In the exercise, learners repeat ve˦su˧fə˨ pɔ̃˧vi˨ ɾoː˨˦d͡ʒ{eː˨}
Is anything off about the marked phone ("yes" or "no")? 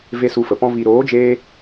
yes